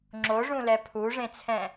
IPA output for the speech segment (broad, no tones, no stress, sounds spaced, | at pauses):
ŋ͡ǁ o ʐ ũ l ɛ pʰ u ʐ ẽ t͡sʰ ɛ̃